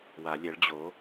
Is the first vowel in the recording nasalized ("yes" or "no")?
no